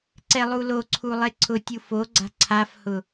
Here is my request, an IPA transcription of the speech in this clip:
ǀ ɛ lˠ u l o ǀʰ u lˠ e ǀʰ ʊ tʲ u f o ɡ͡ǀ a̤ ǀʰ a f h ʊ

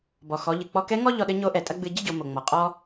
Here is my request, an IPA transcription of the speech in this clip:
b ɔ˩ x ɔ˩˧ ʎ ɨ˩ k͡p ɔ˧ k ɛ˧˥ ŋ ɔ˥ ʎ ɔ˧ ɗ ɘ˧˥ ɲ o˧˥ ʔ ɛ˩ tʼ ɐ˥ ɡ͡b ɨ˧ ɟ ɨ˥ ɟ o˩˧ m o˩ ŋ͡m ɔ˩ qʼ ɔ˥

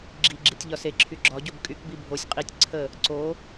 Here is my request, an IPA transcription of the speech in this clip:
ɡ͡ǁ i ɡ͡ǁ i tʲ ʎ ɒ s e ǁʰ y ɡ͡ǁ ɒ ɟ o b kʼ y k b i bʱ o sʲ qʼ i tʲ ǀʰ ə | ǀ o

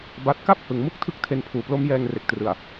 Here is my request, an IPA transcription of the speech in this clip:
b a˦˥ t̚ k a˥˩ p̚ h ɯ˩˦ ŋ m u˥˩ k̚ tʰ ɯ˦˥ k̚ tʰ e˧ n pʰ uː˩˦ p l o˦˥ m j ɛː˧ ŋ r e˨˩ k̚ t r ɯ˨˩ a̯

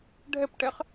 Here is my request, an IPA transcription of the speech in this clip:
ɖʱ ɛ p ʈ ɛ χ

